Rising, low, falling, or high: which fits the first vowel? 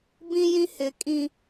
high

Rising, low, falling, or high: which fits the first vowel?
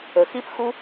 low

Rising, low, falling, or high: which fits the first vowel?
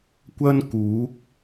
high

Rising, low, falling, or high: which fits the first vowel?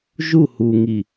falling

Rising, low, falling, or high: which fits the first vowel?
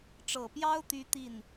low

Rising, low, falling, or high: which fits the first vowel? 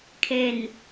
low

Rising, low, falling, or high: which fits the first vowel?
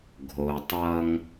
low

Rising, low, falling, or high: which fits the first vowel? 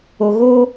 low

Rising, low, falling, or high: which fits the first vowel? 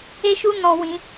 high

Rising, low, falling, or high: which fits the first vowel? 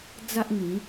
high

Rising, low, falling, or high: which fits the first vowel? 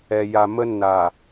low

